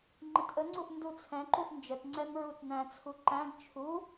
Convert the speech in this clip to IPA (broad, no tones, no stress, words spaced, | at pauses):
ŋ͡ǃətʔəŋ͡ǀuʔ ndut͡sʰɛ̃ǃuʔ nd͡ʒətŋ͡ǀɛm ɹutnæ̃t͡sʰu ǃæ̃ɡ t͡ʃʰu